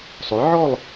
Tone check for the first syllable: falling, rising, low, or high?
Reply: rising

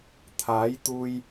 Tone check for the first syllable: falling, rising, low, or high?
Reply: rising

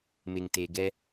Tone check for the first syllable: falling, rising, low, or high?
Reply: low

